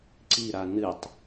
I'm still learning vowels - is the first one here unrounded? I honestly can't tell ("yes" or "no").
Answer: yes